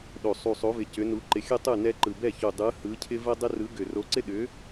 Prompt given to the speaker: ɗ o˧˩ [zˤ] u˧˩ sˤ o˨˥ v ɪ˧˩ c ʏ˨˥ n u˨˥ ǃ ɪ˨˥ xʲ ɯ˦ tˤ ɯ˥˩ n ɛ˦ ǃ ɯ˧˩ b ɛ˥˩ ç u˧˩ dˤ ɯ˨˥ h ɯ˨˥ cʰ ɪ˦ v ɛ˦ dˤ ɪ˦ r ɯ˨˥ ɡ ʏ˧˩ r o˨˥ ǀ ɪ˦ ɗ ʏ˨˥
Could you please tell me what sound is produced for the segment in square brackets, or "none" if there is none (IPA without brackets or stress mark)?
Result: sˤ